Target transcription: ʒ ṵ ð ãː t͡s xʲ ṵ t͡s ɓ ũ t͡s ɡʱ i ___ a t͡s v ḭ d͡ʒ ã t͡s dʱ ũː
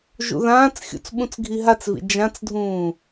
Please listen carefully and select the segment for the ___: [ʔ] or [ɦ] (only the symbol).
ɦ